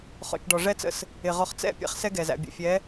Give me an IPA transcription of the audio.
χ ɔ̰˨ t͡ʃ ɖ ɔ˨ ʐ ɛ˦ t͡s ə̰˦ s | ɪ˨ ʁ ɔ˨ χ t͡s ɛ̰˦˨ pʲ ɛ̰˦ χ s ɛ˦ ɡ ɛ˨ z æ̰˨ bʲ ə̰˨ fʲ ɛ˨˦

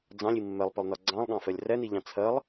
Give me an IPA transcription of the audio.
d͡z ɑ̃ lʲ i mː ɛ lˠ p ɘ lˠ n ɒ ɡ͡ǀ ɑ̃ lˠ ɠ ɑ̃ f ɛ lʲ r ɛ n i ʎ ɑ̃ t͡sʰ ɜ lˠ

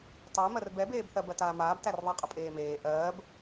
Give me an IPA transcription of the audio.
tˤ ɜ m ɜ r b ɛ b eː b θ ɜ b ɜ t aː m aː b t æ r ðˤ ɜ qʼ ə pʼ eː m eː ʔ ɜː b

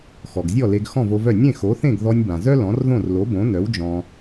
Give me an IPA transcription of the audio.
x ɔ˩ ɡ zʲ ɔ˥˩ l e˧ ɡ x ɔ̃˥˩ v o˧ v œ˥˩ nʲ ẽ˥˩ x o˩˥ θ ẽ˥˩ ɡ ð ɔ˧ nʲ b ã˩ z œ˥ l ɔ̃˩˥ r ð õ˥˩ r l o˩˥ b õ˩˥ n œ˩˥ w d͡ʒ ɔ̃˧

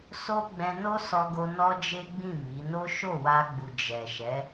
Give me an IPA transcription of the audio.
s o˦ ɡ͡b ɛ̃˧ n o˦ s ɔ˦ ɡ o˦ n ɔ˦ d͡ʒ e˦ ɡ͡b ĩ˦˨ m i˨˦ n o˦ ʃ o˦˨ w a˧ ɡ͡b u˨ d͡ʒ ɛ˨ ʃ ɛ˨˦

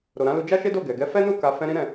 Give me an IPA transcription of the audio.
ɾ o˨ ɾ ã˨˦ l u˧ d͡ʒ a˦ ʃ e˦ d o˦˨ ɡ ɛ˨ ɡ ɛ˨˦ f ɛ˦ n u˦˨ k a˧ f ɛ̃˦ ɾ ĩ˦ ɾ ɛ̃˦˨

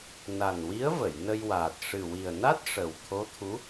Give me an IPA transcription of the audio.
n a˨˩ n w i˧˥ ə̯ v ə˨˩˨ j n ə˧ j w aː˨˩ t̚ ʂ ɨ˨˩ w i˨˩ ə̯ n a˦˥ t̚ ʂ ə˨˩ w t̪ʰ o˧˥ t̪ʰ u˧˥

